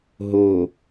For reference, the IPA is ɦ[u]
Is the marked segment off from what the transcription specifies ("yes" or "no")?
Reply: yes